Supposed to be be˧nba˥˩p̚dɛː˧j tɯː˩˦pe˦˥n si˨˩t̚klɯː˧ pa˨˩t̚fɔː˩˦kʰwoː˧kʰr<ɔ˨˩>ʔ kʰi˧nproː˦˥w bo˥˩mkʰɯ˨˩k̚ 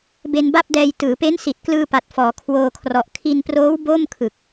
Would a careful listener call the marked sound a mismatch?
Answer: no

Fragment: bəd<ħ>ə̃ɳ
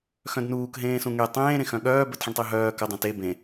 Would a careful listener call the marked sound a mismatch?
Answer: no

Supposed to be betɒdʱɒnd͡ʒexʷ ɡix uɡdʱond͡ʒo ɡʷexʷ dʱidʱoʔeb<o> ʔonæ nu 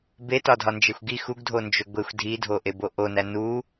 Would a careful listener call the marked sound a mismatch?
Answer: no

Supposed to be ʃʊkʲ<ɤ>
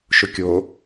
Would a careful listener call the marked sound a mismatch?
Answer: yes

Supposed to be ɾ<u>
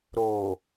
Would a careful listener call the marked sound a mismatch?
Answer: yes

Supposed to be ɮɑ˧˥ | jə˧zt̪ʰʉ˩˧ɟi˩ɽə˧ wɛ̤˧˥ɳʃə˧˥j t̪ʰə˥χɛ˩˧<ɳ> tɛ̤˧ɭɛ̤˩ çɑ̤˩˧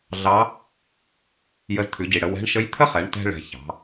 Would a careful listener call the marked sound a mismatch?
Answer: no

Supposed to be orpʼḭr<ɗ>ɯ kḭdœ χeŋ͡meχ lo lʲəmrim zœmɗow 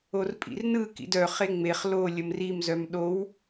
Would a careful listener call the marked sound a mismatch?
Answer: yes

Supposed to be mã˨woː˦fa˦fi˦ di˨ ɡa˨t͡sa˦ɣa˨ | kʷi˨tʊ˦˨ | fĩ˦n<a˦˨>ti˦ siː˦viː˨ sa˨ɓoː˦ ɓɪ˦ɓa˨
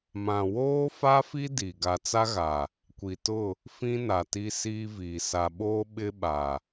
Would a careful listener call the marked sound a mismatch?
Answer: yes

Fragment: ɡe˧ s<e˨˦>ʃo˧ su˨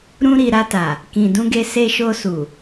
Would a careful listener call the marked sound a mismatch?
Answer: yes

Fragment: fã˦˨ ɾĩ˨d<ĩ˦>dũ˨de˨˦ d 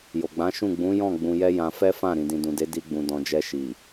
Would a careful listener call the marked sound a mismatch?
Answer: yes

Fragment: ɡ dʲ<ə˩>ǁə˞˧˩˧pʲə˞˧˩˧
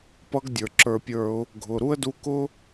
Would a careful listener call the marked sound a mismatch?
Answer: yes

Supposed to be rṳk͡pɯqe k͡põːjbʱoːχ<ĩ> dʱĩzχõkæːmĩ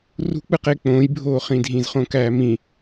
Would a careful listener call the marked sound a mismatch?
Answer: no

